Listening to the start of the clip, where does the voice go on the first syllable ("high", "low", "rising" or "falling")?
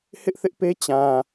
high